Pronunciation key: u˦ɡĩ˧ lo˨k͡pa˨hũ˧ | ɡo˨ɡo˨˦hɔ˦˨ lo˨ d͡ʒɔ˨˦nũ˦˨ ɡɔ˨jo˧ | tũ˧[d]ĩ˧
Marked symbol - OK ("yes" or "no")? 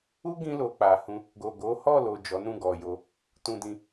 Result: yes